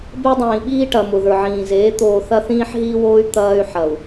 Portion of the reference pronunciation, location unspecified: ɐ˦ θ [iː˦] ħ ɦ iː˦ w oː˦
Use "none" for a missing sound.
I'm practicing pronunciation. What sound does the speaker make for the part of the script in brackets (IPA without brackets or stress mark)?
ĩː˦